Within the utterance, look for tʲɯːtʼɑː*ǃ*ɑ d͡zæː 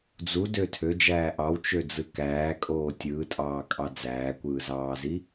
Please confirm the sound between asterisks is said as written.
no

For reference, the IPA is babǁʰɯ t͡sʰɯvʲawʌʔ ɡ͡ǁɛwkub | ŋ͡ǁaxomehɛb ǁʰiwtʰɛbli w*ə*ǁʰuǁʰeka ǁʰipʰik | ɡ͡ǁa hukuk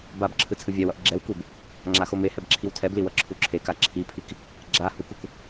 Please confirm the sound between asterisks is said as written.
no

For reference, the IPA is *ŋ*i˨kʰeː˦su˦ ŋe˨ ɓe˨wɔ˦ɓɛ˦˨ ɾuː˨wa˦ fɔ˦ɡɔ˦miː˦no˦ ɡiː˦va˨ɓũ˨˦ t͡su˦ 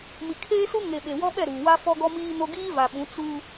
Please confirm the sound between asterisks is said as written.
no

